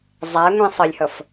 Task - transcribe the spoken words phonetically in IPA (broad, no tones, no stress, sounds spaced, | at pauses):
zˤ æ ŋʷ ĩ sˤ ə lʲ h ʌ f